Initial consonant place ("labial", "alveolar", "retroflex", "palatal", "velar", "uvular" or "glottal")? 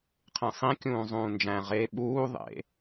uvular